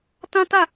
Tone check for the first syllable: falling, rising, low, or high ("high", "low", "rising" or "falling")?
high